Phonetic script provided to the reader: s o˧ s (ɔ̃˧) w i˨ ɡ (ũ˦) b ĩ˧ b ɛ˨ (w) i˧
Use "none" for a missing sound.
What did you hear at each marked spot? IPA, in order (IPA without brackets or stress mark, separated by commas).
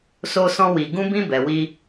ɔ̃˧, ũ˧, w